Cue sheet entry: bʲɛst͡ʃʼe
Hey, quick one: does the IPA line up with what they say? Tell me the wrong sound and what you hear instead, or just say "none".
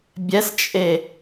none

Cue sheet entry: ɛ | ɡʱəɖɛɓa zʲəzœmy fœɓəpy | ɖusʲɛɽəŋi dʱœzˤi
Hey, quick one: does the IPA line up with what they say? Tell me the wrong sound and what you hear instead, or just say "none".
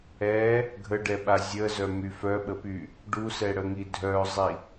sʲ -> s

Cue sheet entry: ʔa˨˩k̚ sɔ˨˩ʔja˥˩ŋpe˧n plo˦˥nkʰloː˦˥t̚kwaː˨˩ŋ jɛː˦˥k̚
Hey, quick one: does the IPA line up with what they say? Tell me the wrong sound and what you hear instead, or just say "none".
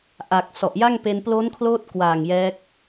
none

